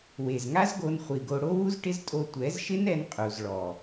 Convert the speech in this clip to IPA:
we˨zŋa˦zɡo˧n χʷi˨ɡo˧ ɽo˦wu˦zʈɪ˦ztʼo˧ tʷɛ˨˦zʃɪ˦nɛ˧n qʼu˨zɭɔ˨

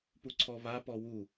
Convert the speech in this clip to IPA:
puǀʰɔβa pɔwu

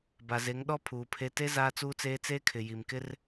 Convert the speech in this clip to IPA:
ba˨ze˨˦ŋɗɔ˦ pʰuː˨pʰe˦ te˦ zaː˦t͡suː˦t͡seː˦ t͡seː˦kʰɪ˨ji˨mkɪ˦r

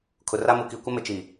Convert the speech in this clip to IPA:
kʰʊ˨ra˦mu˨ ki˨ kʷɪ˦mɪ˨t͡ʃi˨

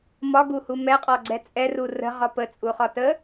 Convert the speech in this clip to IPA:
mɒɡuhu mɛqʼɒɡ͡ǀɛ t͡sʼɛru rə̤ʁɒ pət͡sʼuχɒ tə

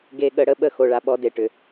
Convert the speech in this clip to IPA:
ɡe˨ɠə˨ ɽə˦ɓə˦˨ xo˨ɭa˨ ɓɔ˦de˨ʈʏ˨

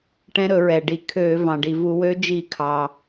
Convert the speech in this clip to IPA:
ʈɛ̃˧˥ɾɵ˧˩˧ ɹɛ˩ ɖi˩ kʰø˧˩˧ vɑ̃˩ɖi˩vu˧˩˧wø˧˥ d͡ʒi˧˩˧kʰɑ˩

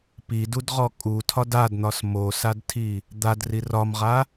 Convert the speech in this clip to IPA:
pidudʁɔ kʼutʰɒd adn̪ɒs mosadtʰi | d̪adri rɒmʁa

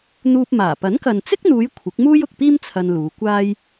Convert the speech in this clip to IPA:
n̪uː˧p̚maː˨˩ pɐ˨˥nkɐ˨nt͡sɪ˥k̚n̪uː˨˧j kʷʰɪ˨˥k̚muː˥j ʊ˨k̚piː˥m t͡sʰɐ˧nluː˨˧kʷaː˥j

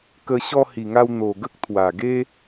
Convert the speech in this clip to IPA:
kə˧ ɕɔ˧hi˨˩ŋa˧w n̪o˨˩ ɡə˦k̚t̪ʰwa˨˩ɡe˦

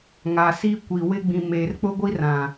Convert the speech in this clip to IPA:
ŋa˨si˦ kʷi˨ wɪ˦ ɡ͡bĩ˨meː˨rk͡pʊ˦ɡʷi˦ rã˨

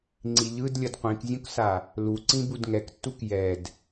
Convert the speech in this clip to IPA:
ŋ͡ǀiʎɯd lʲʌdqʷĩkzʲũksa | luǀĩ budŋɛktːuk jɛd

